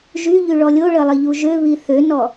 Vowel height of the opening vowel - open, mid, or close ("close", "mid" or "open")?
close